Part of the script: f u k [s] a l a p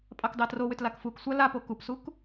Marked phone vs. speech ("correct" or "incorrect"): incorrect